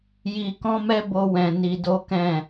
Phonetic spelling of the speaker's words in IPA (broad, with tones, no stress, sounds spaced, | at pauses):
j i˧ k ɔ̃˦ m ɛ˦ b o˧ w ɛ̃˨ n i˧ d o˦ k ɛ̃˦˨